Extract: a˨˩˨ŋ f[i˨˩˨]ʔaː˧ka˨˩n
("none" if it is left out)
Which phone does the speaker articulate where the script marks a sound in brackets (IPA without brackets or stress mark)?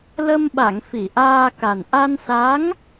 i˨˩˨